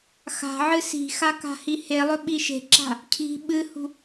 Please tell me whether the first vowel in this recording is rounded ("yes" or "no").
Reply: no